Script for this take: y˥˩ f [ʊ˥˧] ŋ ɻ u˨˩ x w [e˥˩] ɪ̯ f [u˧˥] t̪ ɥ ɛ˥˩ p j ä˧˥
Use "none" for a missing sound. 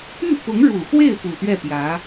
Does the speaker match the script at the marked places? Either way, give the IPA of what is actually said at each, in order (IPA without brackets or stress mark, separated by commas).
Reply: ʊ˧˥, e˥˩, u˨˩